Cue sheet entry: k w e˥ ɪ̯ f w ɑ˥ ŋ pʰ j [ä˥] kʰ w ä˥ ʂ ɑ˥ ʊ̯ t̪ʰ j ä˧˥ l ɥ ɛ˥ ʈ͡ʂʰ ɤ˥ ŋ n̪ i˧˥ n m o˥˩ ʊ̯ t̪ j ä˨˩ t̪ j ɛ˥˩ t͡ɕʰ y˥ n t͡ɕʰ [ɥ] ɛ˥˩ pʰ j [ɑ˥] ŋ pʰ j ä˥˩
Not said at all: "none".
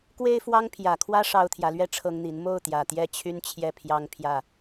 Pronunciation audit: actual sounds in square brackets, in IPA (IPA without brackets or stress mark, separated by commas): ä˨˩, j, ɑ˥